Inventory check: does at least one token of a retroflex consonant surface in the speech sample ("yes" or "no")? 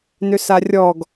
no